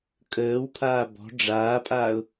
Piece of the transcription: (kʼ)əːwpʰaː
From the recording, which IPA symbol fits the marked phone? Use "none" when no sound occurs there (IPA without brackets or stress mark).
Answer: kʼ